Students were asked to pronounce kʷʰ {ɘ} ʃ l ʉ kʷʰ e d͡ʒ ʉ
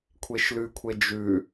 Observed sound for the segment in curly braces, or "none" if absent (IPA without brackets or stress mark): e